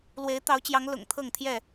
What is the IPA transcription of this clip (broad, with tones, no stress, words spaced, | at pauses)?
lwe˨˦ɪ̯ t̪ɑ˨˦ʊ̯t͡ɕjɑ˨˦ŋ lʊ̰˨˩ŋ t̪ʰɤ˥˨ŋt̪ʰjɛ˥˨